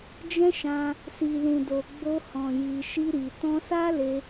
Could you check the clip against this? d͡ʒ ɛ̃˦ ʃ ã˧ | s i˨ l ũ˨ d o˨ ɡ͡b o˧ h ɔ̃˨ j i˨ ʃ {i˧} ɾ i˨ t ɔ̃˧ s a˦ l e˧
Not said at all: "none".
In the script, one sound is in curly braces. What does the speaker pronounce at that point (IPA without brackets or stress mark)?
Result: i˧